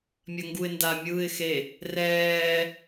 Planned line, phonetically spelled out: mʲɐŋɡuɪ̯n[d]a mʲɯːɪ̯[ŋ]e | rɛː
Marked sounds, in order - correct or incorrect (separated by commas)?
correct, incorrect